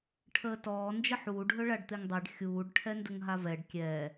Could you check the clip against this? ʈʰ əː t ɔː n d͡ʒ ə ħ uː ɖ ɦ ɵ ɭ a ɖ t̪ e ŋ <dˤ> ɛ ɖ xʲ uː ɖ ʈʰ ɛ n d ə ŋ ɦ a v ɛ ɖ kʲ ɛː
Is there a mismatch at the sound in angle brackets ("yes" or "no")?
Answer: no